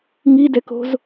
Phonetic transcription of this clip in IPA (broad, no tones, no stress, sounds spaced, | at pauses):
ŋ i d ɛ k o̤ z